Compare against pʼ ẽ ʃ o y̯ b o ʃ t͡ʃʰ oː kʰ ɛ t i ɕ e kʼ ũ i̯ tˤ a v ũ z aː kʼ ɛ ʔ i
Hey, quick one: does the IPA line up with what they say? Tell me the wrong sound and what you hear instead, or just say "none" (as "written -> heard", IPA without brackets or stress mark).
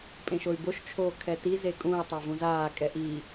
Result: ɕ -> z